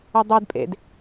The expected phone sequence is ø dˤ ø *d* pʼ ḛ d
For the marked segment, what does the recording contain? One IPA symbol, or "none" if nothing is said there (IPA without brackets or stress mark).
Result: d